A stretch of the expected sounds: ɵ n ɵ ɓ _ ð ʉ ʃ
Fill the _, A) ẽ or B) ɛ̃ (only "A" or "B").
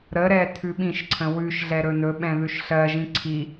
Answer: B